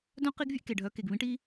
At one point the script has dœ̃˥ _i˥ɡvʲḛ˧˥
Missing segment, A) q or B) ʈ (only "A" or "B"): A